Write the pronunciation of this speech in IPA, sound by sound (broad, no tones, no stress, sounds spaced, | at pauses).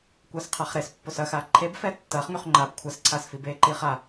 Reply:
kʷ ɐː s qʰ a χ ɾ e s pː o s ɐ x a ǃʰ e b f ɛ tː ɐː χ ŋ y χ ŋ͡ǃ a b kʷʰ ɐ s ǀʰ a s f i b e ǃ iː χ a